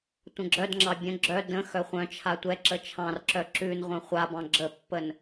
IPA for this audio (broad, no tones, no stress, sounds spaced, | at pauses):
tʷ ə̃ ɡ͡ǁ œ d ŋ͡ǁ ɑ bʲ ə̃ ɡ͡ǁ œ d ə̃ x œ χʷ œ̃ t͡ʃʰ a tʷ ɛ ǁ ə t͡ʃʰ ɑ̃ r ǁ œ ǁ ʉ n ʁʷ œ̃ χʷ a b ɑ̃ ɡ͡ǁ ə pː ə n